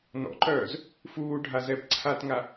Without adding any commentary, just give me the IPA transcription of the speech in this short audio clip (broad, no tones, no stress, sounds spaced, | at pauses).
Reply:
n ɔ̰ ǃ œː z | f uː ɖʱ a z ɛ b ǀʰ a t ŋ a